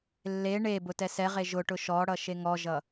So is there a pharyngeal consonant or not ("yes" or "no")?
no